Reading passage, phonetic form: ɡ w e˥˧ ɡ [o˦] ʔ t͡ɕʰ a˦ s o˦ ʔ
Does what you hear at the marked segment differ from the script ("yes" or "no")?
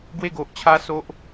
yes